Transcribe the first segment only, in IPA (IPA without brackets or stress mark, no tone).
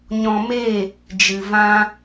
ɲ